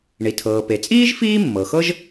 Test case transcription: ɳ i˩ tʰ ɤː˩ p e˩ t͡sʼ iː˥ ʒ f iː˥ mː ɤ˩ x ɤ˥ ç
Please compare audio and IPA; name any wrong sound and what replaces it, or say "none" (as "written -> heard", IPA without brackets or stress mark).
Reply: ç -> ʒ